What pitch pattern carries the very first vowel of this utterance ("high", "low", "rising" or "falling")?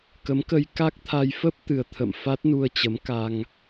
rising